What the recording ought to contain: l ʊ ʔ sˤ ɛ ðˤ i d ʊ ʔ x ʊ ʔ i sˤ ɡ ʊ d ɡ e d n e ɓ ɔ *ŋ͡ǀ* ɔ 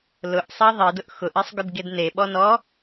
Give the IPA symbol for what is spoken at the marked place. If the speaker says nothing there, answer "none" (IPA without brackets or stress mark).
n